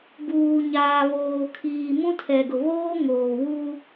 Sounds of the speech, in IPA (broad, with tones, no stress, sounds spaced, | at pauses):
b uː˨ ɲ aː˨ β oː˨ kʰ iː˨ m ũ˦ tʰ ɛ˨ ɡ ʊ˨ β oː˦ ŋ oː˨ w u˦